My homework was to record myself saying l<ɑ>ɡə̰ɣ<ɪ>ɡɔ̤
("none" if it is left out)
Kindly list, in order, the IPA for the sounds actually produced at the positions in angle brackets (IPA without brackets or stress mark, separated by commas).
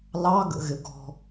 ɑ, ɪ